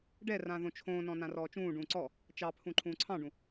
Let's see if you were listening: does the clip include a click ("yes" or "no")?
yes